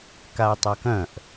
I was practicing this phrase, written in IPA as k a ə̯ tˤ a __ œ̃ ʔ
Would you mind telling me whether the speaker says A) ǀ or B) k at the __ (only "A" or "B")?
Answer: B